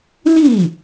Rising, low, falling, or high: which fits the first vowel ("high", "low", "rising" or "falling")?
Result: falling